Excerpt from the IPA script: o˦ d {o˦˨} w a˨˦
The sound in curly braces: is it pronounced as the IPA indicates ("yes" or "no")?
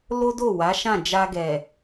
yes